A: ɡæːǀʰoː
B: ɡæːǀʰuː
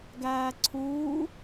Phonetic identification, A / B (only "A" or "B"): B